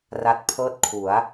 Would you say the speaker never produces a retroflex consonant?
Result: yes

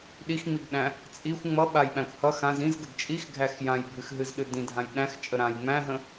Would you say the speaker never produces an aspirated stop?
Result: yes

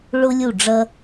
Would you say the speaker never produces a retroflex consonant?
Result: no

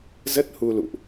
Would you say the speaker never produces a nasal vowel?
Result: yes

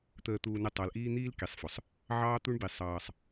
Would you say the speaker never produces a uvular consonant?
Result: yes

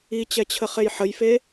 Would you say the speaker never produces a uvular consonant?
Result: no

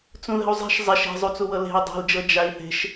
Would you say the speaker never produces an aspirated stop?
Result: yes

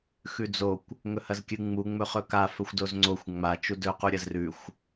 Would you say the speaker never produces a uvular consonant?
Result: no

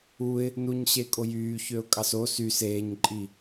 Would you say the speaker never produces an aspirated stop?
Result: yes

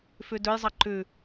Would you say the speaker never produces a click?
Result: no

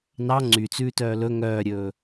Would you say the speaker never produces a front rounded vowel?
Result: no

